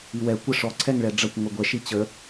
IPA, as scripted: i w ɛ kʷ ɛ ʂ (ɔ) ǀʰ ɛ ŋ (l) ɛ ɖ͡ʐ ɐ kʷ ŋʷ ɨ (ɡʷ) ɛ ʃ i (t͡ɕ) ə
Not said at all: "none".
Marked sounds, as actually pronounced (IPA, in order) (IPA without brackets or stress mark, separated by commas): ɔ, ɭ, ɡʷ, t͡ɕ